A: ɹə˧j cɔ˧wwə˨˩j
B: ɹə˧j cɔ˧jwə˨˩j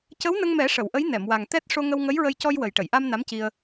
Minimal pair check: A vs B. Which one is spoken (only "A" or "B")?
B